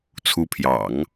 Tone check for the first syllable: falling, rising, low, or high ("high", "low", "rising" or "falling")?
rising